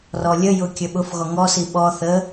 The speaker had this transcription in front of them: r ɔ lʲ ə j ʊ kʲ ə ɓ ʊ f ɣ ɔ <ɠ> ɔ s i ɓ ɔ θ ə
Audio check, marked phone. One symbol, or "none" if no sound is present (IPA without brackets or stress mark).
ŋ